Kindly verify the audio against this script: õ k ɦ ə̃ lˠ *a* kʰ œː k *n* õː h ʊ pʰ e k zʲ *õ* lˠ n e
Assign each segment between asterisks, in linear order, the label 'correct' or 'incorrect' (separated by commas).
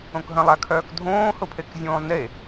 correct, incorrect, incorrect